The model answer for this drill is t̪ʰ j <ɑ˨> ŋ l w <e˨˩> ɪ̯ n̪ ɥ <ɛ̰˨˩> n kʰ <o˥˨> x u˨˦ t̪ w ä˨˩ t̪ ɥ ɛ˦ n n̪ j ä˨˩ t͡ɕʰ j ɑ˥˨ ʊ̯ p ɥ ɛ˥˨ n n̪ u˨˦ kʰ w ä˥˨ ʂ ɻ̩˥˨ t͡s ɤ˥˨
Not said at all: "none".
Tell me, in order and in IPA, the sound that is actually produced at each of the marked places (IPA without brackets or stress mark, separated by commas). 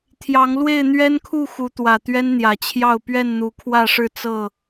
ɑ˨˦, e˥˨, ɛ˦, u˥˨